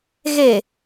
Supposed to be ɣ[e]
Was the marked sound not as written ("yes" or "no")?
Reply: no